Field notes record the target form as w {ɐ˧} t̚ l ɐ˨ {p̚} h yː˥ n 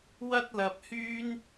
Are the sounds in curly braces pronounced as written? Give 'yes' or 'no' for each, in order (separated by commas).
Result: no, yes